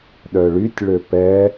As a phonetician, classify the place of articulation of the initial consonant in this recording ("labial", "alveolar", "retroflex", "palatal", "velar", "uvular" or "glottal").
alveolar